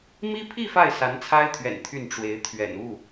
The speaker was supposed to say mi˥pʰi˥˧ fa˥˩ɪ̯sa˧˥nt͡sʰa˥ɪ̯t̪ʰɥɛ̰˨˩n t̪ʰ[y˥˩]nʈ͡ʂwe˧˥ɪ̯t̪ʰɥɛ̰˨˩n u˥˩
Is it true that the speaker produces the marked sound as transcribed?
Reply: yes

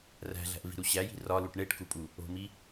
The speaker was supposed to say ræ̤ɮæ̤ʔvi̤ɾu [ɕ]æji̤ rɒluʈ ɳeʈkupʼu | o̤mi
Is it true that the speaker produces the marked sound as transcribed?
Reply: yes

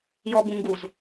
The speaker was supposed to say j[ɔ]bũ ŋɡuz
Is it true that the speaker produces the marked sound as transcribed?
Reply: yes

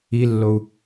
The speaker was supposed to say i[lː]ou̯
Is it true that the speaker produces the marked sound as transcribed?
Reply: yes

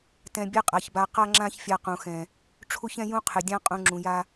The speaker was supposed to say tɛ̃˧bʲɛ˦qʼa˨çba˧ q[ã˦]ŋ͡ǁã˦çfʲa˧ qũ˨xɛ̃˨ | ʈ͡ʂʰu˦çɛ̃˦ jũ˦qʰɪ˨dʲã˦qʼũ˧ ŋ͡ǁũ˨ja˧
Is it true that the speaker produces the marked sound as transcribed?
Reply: no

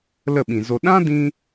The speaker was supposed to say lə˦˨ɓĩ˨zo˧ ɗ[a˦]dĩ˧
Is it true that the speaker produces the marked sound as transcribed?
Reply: no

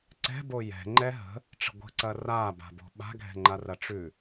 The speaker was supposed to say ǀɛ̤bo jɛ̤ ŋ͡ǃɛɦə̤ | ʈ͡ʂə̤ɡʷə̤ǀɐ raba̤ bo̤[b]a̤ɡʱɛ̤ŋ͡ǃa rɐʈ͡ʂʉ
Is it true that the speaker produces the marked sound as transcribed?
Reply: no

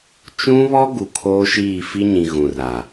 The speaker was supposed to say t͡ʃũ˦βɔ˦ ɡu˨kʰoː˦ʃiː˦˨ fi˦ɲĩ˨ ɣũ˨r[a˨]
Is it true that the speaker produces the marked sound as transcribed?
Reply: yes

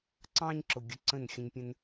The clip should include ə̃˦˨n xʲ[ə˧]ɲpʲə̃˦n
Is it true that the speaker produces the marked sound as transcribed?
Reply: no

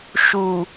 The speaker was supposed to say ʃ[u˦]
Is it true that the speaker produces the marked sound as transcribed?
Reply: no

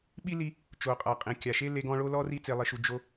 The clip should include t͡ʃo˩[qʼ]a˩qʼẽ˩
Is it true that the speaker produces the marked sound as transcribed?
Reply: yes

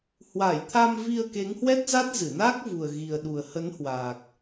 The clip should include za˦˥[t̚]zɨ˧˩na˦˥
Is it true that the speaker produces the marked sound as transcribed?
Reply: yes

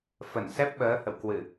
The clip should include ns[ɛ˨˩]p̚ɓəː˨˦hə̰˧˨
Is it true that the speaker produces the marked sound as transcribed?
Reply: no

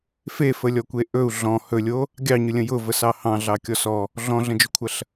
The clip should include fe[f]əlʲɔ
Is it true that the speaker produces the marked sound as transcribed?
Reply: yes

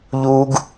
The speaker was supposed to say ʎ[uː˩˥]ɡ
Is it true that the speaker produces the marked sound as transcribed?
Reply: no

